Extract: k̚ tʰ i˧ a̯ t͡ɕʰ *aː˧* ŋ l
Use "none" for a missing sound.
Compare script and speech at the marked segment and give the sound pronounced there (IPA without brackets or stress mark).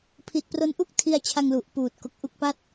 a˧